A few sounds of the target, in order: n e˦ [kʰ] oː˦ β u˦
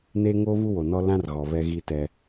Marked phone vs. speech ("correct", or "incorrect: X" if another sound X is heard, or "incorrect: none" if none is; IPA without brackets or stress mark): incorrect: ŋ